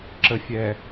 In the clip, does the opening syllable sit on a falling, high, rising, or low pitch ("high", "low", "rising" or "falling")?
low